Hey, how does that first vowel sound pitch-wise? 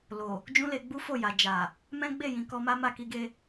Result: low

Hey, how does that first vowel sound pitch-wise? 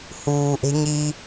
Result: low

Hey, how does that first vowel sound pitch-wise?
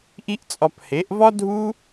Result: high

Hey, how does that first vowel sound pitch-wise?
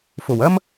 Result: low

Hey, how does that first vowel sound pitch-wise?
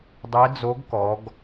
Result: rising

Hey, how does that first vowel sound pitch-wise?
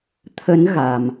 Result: rising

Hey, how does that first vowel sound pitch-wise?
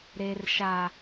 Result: low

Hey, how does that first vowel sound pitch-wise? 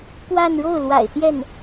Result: falling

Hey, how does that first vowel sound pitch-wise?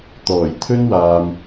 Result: low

